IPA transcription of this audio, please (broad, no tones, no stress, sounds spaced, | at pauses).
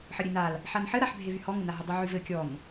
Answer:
ħ ə ɾʲ e n a l | ħ a n ħ ɘ ɾ a ħ bʱ e v y h ɔ ŋ ə n a ɦ ə dˤ y ʕ y v ɘ kʲ ɔ n